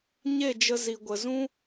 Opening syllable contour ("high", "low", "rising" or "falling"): falling